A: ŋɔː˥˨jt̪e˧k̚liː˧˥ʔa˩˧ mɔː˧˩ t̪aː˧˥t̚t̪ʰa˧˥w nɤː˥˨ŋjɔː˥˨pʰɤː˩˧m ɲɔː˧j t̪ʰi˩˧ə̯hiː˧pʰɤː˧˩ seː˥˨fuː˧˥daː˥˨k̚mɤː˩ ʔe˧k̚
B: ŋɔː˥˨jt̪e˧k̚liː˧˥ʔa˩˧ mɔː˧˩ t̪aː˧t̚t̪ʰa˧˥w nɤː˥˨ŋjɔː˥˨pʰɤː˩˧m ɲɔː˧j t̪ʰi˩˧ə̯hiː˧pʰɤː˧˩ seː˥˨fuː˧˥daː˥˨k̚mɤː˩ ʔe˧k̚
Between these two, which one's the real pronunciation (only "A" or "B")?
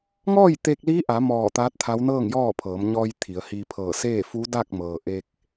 A